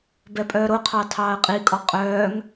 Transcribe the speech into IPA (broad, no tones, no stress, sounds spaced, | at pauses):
b ɛ pʼ œː ɾ o qʰ ɑ tʰ ɑː ə̯ qʼ i kʼ ɔ qʼ œː ŋ